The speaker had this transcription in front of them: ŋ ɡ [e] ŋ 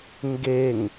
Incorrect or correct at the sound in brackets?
correct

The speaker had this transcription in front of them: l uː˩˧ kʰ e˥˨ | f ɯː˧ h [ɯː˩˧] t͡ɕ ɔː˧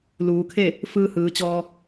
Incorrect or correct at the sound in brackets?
correct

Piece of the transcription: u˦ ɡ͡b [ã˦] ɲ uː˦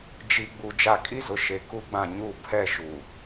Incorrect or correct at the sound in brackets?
incorrect: ã˦˨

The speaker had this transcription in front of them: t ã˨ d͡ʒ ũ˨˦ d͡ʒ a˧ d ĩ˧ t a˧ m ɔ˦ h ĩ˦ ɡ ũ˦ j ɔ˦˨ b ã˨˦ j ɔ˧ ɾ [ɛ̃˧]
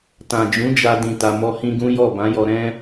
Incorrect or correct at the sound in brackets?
incorrect: ɛ̃˦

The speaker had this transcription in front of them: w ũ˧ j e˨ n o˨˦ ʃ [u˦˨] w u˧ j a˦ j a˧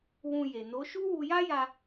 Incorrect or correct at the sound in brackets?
incorrect: u˦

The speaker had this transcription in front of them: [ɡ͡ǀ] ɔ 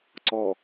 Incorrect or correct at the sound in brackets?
incorrect: ǀ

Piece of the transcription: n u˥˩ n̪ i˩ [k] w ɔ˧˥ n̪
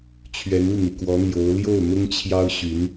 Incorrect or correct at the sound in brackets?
correct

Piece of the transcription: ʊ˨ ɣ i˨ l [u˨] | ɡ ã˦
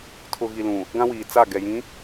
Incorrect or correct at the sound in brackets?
incorrect: ũ˨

